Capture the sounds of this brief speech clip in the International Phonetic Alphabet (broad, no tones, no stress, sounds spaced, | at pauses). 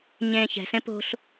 ɲ ẽː ç ɛ̤ s ẽ p o̤ ɬ